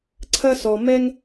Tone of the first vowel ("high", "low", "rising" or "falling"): high